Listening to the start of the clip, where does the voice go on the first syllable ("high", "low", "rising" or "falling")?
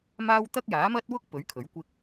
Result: high